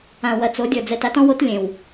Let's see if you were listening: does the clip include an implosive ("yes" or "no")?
no